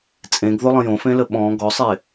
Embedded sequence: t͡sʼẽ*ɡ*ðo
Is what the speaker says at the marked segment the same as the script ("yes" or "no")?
yes